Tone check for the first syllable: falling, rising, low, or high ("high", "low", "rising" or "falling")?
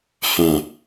low